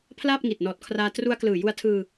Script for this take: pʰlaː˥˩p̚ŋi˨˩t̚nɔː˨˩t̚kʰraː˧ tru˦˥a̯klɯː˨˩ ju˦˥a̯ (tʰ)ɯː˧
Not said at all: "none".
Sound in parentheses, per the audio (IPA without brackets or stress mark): tʰ